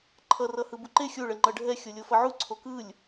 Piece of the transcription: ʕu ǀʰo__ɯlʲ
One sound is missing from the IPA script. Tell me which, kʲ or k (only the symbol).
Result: k